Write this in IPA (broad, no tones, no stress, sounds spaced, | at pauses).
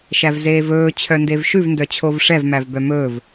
ʃ æ v z eː v ɵː t͡ɕʰ œ n d e v ʃ ʉ v n d œ t͡ɕʰ o v ʂ ɛ v m æ v b œ m ɵː v